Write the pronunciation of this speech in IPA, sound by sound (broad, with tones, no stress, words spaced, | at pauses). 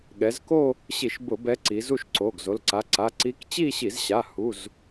ɠɛ˩˧zko˥˧ | ɕi˧˩˧ʃbʊ˧˩˧ bɛ˧˥ǀi˩˧ zu˥˧ʃǀo˩˧˩ɡzo˩˧˩lǀa˩˧˩ ǀa˩˧˩ ǀi˧˥k t͡ɕi˥˧ɕi˧˩˧zɕa˩˧˩ hu˩˧˩z